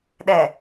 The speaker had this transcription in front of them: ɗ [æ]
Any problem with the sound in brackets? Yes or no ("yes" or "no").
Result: yes